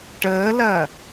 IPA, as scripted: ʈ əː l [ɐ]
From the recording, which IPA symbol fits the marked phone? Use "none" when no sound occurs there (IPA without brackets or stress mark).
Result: ɐ